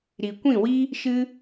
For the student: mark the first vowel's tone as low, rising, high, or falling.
low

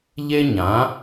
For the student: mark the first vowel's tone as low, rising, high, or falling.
high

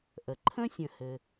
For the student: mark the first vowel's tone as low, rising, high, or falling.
low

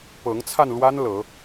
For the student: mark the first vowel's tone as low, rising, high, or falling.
rising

